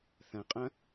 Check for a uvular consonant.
present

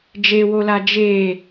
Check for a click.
absent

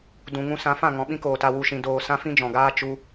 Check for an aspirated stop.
absent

